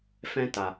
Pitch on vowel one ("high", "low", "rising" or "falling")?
high